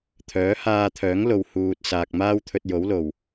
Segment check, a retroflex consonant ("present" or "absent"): absent